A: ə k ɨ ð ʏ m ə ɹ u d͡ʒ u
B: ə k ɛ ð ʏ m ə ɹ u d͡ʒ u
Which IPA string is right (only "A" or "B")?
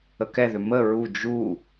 B